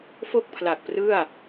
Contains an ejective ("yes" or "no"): no